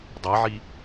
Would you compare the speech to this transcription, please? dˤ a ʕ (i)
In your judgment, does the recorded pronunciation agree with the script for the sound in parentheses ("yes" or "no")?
yes